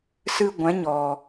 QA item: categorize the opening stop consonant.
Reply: plain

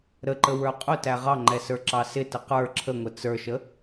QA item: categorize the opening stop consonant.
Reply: click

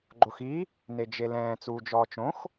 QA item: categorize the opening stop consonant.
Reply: click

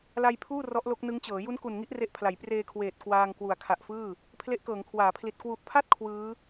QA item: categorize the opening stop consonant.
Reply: aspirated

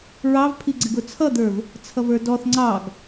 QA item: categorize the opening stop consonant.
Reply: aspirated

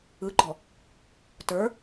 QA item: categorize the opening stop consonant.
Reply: click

